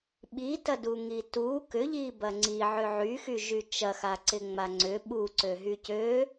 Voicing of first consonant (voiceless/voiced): voiced